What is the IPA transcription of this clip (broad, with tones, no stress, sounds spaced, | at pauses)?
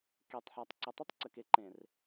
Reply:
k e˨ tˤ ħ a˨ tˤ ǀ ə˨ tˤ ɪ˦ tˤ ǀ ə˨ k e˦ ǃ ẽ˨ r